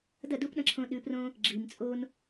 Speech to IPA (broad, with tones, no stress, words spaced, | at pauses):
dɐ˦˨du˦p ɗɐ̃˧ǁʰõ˧ɗʉ˨˦prõ˦ | ɡ͡ǁi˨m t͡sʼo˦n